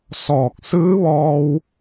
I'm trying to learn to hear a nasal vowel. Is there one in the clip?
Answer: no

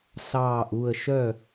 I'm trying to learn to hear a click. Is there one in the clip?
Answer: no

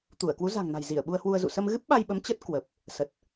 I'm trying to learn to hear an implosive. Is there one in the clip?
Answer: yes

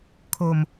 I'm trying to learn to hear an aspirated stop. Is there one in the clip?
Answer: yes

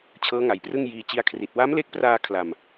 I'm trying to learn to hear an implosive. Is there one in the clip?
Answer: no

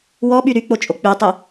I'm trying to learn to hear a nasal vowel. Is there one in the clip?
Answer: no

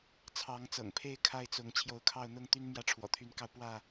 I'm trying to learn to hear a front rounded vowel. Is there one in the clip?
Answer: yes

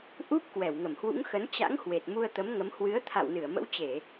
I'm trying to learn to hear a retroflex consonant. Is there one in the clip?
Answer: no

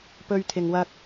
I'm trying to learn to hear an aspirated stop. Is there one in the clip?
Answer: yes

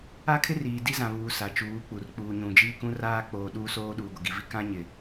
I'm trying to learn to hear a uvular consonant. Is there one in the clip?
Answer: no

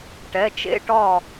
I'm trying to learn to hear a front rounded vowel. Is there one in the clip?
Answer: no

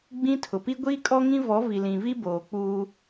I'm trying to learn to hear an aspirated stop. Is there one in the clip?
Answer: yes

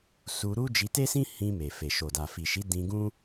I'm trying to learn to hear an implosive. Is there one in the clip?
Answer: no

